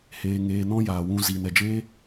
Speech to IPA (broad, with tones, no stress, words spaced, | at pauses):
heː˧ ŋeː˧nɔ̃˦ jaː˨wũ˧ ziː˨nɛ˨d͡ʒeː˦